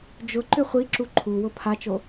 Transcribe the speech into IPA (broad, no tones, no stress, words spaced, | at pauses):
d͡ʒʊ ǃʏχʷiǁu ǃʰuwʊ pʰat͡ʃo